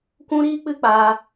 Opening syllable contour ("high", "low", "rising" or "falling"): high